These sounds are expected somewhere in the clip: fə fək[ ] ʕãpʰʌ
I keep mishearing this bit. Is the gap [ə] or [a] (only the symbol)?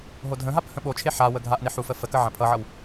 ə